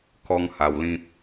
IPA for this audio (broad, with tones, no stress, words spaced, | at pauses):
kɔ˦ŋha˧wlĩ˦p̚